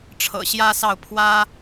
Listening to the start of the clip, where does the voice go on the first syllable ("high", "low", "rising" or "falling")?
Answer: low